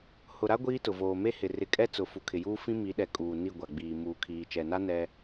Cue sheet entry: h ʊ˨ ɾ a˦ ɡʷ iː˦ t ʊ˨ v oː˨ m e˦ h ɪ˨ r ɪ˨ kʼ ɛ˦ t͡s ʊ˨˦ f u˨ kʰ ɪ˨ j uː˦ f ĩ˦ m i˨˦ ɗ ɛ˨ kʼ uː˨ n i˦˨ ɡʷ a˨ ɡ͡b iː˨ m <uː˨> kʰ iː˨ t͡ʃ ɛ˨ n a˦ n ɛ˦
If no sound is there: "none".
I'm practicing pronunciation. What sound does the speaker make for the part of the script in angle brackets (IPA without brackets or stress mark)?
uː˨